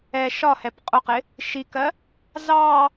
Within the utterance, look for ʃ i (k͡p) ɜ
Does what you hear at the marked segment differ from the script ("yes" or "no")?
yes